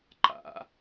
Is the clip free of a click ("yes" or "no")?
no